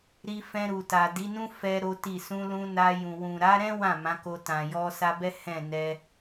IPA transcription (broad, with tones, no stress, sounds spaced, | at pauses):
ɾ i˧ f ɛ̃˧ ɾ u˨ t a˨ d i˨˦ n ũ˦ f ɛ˦ ɾ o˦ t i˦˨ s ũ˧ l ũ˧ n a˧ j ũ˨ w ũ˨ ɾ a˨˦ ɾ ɛ̃˦ w ã˦˨ m ã˨˦ k o˧ t ã˨ j ɔ˧ s a˧ b ɛ˦ h ɛ̃˦˨ n ɛ˧